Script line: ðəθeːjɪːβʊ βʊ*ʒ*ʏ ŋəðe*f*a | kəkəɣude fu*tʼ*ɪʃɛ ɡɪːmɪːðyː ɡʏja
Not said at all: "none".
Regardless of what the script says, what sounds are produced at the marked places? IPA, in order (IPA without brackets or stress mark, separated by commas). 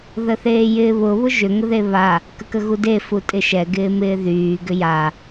ʒ, β, tʼ